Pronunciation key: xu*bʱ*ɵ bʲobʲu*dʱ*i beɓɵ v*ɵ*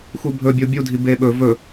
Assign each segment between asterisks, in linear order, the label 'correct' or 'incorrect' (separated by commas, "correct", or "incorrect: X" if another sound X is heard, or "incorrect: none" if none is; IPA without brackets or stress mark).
correct, correct, correct